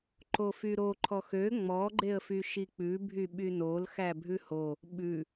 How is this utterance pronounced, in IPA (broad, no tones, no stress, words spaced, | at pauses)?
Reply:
ǃofyɾo ǃʰɔxø ŋ͡mɔɡ͡ǃeə̯fy ʃik͡pʉ bʱyɓynol xæbʱʉho | ɓʉ